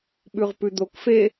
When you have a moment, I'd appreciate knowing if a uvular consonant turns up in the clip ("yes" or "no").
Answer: yes